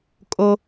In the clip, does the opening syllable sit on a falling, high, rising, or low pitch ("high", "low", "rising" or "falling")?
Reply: high